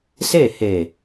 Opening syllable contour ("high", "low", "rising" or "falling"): falling